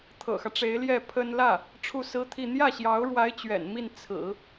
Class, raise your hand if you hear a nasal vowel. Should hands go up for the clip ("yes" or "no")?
no